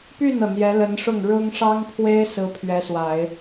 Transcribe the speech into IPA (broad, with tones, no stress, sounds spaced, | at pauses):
p y˥˩ n ɤ˩ n̪ j ɛ˧˥ l ə˧˥ n ʂ ʊ˥˩ ŋ ɻ ʊ˥ ŋ ʂ ɑ˥ ŋ pʰ w e˥ ɪ̯ s ɹ̩˥ pʰ ɥ ɛ˧˥ s w a˨˩˦ ɪ̯